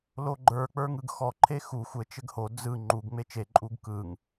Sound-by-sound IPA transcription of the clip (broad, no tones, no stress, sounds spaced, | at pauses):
l o ɡ͡ǃ ə˞ k͡p ə˞ ŋ ɯ ɡ x ɔ ǃʰ e x u xʷ ɘ t͡ʃ ɘ ɡ h o d͡z ɯ ŋ͡ǃ u ɡ ŋ͡m e t͡ʃ e ǃʼ u ɡ k ɯ ŋ